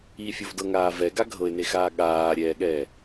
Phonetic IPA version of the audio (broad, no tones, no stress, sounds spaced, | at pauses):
i fʲ o v d ɤ ŋ aː v ɛ ɡ a ɡʱ ɤ ɪ̯ n e x aː ɠ aː ɾʲ ɛː ɠ ɛː